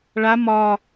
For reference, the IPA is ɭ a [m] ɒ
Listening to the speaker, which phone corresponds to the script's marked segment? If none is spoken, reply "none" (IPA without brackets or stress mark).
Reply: m